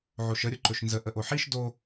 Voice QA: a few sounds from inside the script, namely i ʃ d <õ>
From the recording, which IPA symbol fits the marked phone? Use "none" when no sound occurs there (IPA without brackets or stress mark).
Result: o